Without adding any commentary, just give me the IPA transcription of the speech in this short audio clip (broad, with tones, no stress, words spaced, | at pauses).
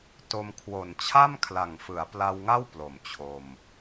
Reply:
to˧m kʰwo˨˩nt͡ɕʰa˥˩mkʰla˨˩ŋfɯ˩˦a̯ pla˧wŋa˥˩w plo˨˩mt͡ɕʰo˧m